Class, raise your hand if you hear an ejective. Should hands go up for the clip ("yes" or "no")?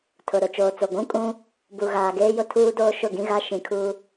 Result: yes